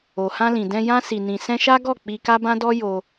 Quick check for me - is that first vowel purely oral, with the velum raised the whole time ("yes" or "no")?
yes